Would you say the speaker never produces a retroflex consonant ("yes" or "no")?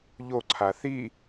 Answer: yes